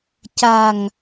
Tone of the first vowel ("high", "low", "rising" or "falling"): low